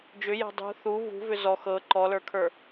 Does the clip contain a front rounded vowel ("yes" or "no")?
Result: yes